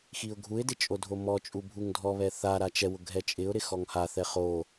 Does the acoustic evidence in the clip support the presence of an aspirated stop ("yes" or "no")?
no